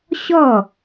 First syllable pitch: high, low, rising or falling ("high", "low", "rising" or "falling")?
falling